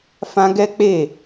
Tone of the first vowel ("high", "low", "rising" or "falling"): high